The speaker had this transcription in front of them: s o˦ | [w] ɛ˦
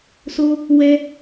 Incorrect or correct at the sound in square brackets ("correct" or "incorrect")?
correct